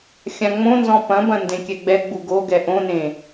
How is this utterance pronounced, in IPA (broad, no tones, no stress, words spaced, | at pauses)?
xʲãŋ͡mõnzɔ̃ pɐ̃bɐ̃ ndẽkʲɛɡ͡bɛɡ͡bu ɡoɡɛ ʔõnẽ